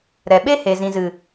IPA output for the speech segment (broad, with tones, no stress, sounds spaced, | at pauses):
ɾ ɛ˨ ɓ e˦ h e˨ z ĩ˨ z ɨ˨